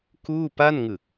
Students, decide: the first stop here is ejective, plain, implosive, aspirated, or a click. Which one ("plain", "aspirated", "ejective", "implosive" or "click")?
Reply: plain